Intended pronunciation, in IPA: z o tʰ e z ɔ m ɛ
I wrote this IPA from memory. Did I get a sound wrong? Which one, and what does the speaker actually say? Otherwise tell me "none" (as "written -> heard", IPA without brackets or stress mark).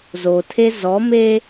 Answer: ɛ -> e